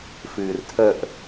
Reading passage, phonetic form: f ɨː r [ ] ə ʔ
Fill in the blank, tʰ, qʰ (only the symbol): tʰ